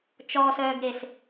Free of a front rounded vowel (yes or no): no